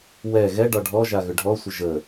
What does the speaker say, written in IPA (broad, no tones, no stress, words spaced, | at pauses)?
wɛ ɣɛɖɒ ɖʱɔ ʒaɣʏɖʱɔsʷə ʒə